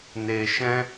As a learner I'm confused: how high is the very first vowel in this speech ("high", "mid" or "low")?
mid